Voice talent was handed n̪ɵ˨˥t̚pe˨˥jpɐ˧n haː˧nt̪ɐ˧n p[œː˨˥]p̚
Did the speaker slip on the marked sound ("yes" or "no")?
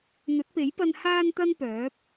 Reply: no